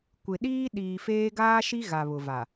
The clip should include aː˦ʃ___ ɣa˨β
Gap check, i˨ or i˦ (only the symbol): i˦